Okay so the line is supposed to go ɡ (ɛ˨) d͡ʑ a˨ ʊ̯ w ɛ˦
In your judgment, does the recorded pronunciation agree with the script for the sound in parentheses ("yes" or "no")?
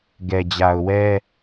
yes